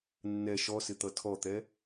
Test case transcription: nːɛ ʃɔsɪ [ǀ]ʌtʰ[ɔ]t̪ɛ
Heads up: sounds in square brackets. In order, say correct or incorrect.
incorrect, correct

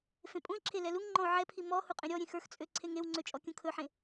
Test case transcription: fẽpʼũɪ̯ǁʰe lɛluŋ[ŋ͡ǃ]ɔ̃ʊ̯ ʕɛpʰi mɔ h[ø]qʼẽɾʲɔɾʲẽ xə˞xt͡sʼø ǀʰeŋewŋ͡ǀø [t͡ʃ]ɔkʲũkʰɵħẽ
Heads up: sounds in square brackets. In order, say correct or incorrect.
correct, incorrect, incorrect

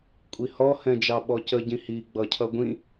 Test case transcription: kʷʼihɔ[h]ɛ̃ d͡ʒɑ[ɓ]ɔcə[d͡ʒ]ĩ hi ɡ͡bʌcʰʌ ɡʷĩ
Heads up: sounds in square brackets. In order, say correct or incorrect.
correct, correct, incorrect

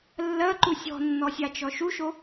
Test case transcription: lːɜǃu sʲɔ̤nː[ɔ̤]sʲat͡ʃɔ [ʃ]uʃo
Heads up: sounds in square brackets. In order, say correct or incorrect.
incorrect, correct

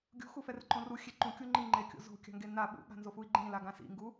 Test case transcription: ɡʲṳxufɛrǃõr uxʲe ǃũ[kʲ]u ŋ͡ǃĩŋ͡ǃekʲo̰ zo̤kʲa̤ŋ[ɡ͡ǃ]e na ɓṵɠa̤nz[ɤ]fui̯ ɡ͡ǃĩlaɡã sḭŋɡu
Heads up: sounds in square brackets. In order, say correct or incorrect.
correct, incorrect, incorrect

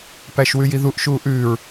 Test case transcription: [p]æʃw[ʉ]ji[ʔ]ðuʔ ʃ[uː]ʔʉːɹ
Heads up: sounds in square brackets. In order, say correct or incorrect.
correct, correct, incorrect, correct

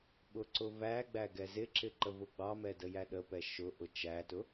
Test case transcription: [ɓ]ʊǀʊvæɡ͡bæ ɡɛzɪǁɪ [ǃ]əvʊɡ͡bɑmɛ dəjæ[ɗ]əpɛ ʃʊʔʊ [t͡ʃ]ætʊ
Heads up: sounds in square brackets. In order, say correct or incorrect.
correct, correct, correct, correct

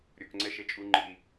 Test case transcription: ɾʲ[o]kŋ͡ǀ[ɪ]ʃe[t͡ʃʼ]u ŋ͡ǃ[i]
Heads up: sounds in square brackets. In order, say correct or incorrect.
correct, incorrect, correct, correct

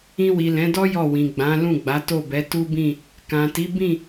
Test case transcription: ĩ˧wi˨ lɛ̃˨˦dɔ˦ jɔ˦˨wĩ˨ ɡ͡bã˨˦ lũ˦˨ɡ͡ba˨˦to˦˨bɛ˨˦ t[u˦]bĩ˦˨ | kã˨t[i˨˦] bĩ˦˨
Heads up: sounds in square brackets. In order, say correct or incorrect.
correct, correct

